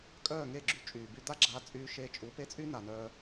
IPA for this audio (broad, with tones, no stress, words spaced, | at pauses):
kʼœː˦˨ŋe˦˨ɡ͡ǁy˧ t͡ʃʼyː˨by˦ d̪a˦ɡ͡ǁaː˧t͡sʼyː˧ ʃeː˧t͡ʃʼu˨˦pe˦t͡sʼy˦ na˨nœː˧